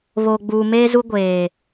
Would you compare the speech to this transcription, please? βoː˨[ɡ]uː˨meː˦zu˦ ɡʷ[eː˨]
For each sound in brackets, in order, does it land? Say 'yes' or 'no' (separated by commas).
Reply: no, yes